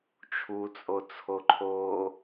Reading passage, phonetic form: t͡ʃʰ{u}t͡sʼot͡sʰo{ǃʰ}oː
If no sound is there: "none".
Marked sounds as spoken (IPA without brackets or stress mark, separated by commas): u, ǃʰ